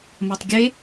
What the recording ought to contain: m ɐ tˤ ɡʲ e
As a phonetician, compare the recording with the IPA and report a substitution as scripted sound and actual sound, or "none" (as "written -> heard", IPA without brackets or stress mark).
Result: none